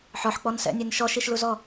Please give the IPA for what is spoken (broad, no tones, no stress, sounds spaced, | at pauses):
ħ ɔ ħ k͡p ɔ n s ɛ̰ nʲ ɛ n ʃ ɔ ʃ i ʃ l u z ɔ